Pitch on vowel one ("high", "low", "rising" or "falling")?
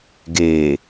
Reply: low